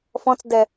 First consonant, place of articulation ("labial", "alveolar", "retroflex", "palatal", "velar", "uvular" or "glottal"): labial